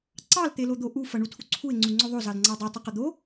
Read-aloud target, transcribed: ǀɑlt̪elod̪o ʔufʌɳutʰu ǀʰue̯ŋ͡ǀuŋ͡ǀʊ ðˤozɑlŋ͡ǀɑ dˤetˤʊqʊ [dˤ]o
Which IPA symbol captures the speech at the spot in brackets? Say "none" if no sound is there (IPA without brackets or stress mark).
d̪